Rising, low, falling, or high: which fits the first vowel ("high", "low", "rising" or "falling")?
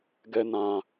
high